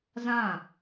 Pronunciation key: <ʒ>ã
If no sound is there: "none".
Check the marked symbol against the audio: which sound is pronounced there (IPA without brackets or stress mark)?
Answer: z